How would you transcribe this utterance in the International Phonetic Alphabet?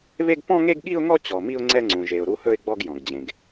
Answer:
βe˥ɡ pɔ̃˥ŋe˥ɡɠi˥ʊ̯ŋɔ˥ t͡ɕɔ˧mi˥ʊ̯ ŋ͡ǀɛ˥ŋ͡ǀũ˧ʒe˧ʊ̯ ɾu˥hɵ˥ɪ̯ɡ͡bɔ˥ɡ jɔ̃˧ɡd͡ʑẽ˧ɡ

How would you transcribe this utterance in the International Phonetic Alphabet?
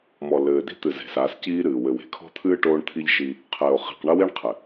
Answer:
mɔ˨lɘː˨di̤˦t̪ɨ˨ ze̤˨sa˨˦sciː˦ ɾɨː˨ wɘ˨we̤˨kʰɔ̤˦t̪ʰɨː˦ ʈoː˦ɳt̪ʰi˦ʎʃi˦ | qʰɘː˨o̯χi̤˨qɳɐ˦wi˦ɳ qʰɘ˨

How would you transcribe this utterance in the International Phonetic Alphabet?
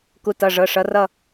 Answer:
ku˨˦tʌ˩˧˩ʐɤ˩˧˩ ʂʌ˨˦rʌ˥˧

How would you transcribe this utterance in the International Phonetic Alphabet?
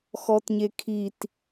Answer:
xɔtɲekʰit

